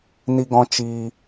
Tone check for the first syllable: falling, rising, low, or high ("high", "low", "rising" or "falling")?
high